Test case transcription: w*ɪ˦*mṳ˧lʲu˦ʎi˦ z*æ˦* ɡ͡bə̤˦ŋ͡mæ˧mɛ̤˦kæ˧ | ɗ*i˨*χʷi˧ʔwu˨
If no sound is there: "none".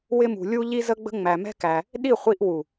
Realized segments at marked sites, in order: ɪ˦, ə˦, i˦˨

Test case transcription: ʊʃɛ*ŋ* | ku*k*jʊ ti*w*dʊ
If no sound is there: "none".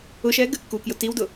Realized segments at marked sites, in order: ɡ, k, w

